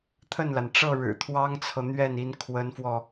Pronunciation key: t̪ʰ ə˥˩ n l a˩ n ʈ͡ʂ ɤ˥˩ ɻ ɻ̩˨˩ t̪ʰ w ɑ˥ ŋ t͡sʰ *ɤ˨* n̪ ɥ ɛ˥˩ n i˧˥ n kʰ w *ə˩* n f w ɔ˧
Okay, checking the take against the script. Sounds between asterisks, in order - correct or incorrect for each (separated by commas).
correct, incorrect